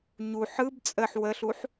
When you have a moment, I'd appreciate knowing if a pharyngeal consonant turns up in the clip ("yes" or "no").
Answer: yes